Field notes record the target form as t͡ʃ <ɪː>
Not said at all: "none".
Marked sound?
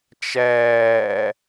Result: ɛː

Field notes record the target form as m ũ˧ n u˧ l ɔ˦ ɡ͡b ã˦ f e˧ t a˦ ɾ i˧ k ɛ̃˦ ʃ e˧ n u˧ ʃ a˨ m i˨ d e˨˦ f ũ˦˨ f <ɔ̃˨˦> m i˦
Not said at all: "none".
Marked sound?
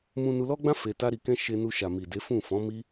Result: ɔ̃˨˦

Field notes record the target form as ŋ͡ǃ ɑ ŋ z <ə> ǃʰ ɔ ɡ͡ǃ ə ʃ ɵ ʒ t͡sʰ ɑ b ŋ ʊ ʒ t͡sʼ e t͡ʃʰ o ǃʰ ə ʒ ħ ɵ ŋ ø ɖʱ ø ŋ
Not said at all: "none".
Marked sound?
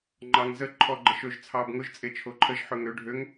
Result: ə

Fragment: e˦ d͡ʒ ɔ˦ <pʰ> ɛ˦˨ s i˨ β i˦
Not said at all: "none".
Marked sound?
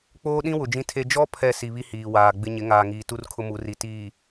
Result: pʰ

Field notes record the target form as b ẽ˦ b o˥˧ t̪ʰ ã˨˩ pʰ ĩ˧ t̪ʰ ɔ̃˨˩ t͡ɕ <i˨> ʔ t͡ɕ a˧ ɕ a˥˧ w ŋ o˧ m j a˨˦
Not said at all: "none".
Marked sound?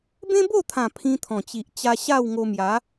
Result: i˨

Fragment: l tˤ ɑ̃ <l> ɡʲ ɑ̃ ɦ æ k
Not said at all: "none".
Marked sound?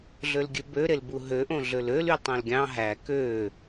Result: l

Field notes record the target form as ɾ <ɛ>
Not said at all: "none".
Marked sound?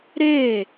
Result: e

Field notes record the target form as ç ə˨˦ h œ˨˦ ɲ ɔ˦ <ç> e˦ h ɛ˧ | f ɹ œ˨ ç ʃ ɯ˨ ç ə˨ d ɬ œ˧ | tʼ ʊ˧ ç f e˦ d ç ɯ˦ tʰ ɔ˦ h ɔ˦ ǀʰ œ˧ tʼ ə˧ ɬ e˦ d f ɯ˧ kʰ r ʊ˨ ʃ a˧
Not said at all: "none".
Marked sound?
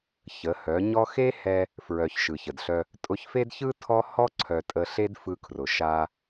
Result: x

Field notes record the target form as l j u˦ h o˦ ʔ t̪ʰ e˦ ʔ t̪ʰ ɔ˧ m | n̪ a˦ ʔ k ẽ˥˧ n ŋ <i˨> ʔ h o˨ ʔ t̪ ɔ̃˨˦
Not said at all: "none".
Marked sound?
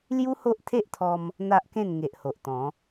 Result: e˨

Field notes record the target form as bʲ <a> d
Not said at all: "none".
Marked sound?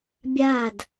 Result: a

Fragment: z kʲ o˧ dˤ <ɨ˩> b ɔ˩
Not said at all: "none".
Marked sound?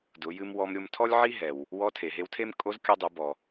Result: ɨ˩˧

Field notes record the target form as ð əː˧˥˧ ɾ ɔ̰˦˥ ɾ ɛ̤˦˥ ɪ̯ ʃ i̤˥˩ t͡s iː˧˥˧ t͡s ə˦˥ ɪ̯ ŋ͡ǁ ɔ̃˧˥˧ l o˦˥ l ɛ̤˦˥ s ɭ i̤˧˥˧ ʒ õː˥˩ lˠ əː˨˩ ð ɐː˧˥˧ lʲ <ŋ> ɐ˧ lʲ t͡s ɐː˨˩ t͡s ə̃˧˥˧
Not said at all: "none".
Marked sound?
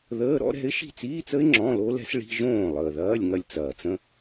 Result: ŋ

